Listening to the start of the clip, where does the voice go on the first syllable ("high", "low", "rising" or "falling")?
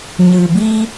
low